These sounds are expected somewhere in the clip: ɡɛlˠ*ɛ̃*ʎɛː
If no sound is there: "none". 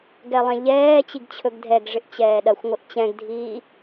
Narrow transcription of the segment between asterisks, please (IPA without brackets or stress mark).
ɛ̃